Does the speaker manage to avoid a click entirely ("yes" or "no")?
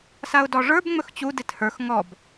yes